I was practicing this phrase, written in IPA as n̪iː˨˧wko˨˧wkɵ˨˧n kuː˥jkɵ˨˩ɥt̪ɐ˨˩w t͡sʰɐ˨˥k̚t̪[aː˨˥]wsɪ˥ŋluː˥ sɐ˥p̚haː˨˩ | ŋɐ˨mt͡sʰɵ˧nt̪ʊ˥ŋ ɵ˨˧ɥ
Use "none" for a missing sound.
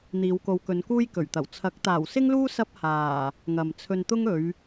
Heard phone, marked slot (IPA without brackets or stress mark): aː˨˩